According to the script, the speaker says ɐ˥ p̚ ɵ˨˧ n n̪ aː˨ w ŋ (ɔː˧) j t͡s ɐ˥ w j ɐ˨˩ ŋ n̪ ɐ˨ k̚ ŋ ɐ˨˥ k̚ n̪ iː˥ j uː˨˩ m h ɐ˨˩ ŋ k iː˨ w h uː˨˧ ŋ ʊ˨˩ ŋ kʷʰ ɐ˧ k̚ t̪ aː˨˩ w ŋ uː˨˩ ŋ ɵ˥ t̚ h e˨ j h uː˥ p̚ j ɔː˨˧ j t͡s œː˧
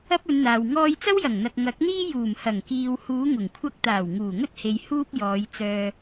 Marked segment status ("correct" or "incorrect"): correct